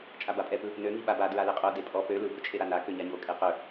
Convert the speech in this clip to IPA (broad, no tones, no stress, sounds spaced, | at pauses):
t͡ʃʼ a b a pʼ ɛ p ɯ | n ø ŋ i ɓ a b a d ɹ a l e qʼ o d e pʼ ɔ p ø l ɯ b ɵ t͡ʃʼ e ɾ a n a k ø ɲ a ɲ o kʼ e q ɵ